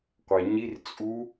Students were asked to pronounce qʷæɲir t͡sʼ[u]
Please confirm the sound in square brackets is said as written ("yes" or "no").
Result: yes